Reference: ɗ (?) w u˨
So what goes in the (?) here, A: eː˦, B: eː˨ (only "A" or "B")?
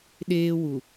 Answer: A